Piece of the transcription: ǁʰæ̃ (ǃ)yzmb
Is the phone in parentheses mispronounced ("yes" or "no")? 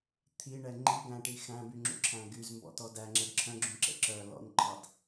yes